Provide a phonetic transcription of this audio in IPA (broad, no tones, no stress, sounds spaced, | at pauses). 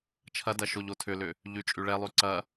t͡ʃʰ ɐ d ɐ ʃ o ʎ o tʰ ʏ l ʏ | ʎ y t͡ʃʼ y ɭ ɛ lˠ y ǀ ɐ